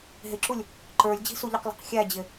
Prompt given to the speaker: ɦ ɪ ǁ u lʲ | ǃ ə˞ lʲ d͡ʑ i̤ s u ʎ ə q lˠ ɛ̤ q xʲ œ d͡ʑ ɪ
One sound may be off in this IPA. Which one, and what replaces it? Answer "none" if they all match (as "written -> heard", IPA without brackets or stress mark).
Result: œ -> æ